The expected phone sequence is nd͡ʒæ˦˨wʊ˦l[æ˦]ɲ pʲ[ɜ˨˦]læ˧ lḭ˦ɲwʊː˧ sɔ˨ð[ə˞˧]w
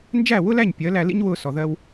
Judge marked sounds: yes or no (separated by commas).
no, yes, no